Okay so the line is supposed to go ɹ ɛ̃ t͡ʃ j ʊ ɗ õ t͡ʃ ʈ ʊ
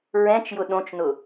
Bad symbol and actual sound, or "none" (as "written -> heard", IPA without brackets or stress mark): ʈ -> n